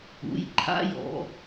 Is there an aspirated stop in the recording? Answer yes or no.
yes